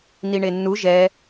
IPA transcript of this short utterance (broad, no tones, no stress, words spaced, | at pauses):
niɳenːu ʒɛ